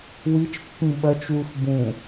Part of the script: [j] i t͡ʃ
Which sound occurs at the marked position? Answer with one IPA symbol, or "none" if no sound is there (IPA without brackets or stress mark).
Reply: w